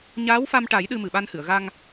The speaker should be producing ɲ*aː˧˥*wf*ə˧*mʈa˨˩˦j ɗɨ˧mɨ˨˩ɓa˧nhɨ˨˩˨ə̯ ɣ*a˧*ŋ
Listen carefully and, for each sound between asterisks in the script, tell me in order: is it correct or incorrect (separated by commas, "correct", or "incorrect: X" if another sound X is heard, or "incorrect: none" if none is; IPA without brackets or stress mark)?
correct, incorrect: a˧, correct